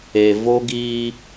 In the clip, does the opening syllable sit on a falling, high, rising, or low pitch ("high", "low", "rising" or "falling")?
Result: low